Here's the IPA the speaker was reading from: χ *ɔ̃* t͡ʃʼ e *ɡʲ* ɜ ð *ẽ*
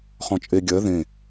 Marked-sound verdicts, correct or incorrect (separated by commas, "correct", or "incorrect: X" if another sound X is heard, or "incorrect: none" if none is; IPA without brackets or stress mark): correct, correct, correct